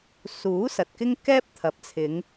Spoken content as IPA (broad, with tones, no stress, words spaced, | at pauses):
suː˨˥ sɐ˨t̚kɪ˥ŋ kɛː˥p̚t̪ʰɐ˨˥p̚t͡sʰɪ˨˧ŋ